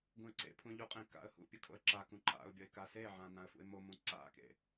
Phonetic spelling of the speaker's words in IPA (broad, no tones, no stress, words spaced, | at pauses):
ɡũə̯ǀḛpʰũ ʎuqʼẽ ka̰ə̯hṵpʲɯ kʰo̰ə̯ǁakũ ǃa̰ʊ̯bʲʌɪ̯ kaseʕã nãə̯fṵɪ̯momũ ǀa̰kḛ